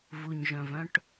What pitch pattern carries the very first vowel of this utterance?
low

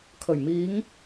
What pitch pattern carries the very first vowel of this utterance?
low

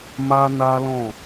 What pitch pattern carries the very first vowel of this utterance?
high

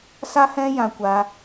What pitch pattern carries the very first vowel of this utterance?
high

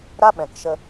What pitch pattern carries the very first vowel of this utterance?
high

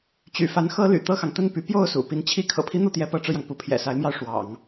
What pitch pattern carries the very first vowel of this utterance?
low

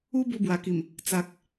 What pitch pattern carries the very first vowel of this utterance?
high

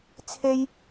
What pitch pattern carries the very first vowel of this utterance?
high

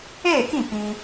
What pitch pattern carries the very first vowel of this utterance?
falling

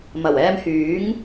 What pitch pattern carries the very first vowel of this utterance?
low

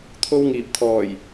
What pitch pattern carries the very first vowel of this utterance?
high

